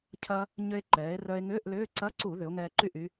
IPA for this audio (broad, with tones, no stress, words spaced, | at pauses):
cʰɐ˧ | ɲʏ˧e̯ǃɛː˩˧e̯ rœ˧e̯ŋʏː˧˥˧ʔlʏː˧˥˧ ǀɐ˧˥˧ǀu˧˩˧ ðʏ˩˧o̯ ŋɛː˧ǃy˥˩ʔy˧